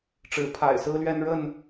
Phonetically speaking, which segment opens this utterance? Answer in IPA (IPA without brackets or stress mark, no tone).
ʈ͡ʂ